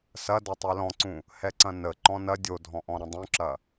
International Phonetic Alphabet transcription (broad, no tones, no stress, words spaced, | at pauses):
sɐdɐ tˤɛlɔ̃ǀũ | hɛǀɐ̃nə ǃɔ̃nɐ dʲodʱɔ̃ʔɔ̃ ɾɐ̃dˤũǁɐ